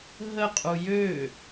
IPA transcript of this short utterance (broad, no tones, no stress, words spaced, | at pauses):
ɦəqʼu jø